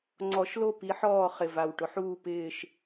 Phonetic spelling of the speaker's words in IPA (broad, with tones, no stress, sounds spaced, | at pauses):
ŋ͡ǀ ɔ˨˩˦ ʃ l o˦˨ p i˨˦ ħ ɔː˦˨ χ ɪ˨˩ v a˨˩ w ʈ ʊ˨˦ ħ uː˦˨ p ɪː˦˨ ʃ